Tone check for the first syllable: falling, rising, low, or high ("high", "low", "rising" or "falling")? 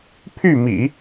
falling